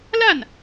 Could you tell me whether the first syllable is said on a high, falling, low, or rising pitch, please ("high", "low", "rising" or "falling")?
falling